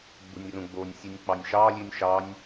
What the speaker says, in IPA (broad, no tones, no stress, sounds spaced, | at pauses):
ɡ͡b ṳ nʲ r ũ ɡ͡b o nʲ sʲ u nʲ k͡p ɑ nʲ ʃ ɑ lʲ ʉ nʲ ʃ ɑ nʲ